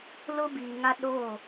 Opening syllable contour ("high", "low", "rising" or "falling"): high